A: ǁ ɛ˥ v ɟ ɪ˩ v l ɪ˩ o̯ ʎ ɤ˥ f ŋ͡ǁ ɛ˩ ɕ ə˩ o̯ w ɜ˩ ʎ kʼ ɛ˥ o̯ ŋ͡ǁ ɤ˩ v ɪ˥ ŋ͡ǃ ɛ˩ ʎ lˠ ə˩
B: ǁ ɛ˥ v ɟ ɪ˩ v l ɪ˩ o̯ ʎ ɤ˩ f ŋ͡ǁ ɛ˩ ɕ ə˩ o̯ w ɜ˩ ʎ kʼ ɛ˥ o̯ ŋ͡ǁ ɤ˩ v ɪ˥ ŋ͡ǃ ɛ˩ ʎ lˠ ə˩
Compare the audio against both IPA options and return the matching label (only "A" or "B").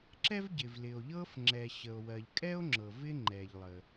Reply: A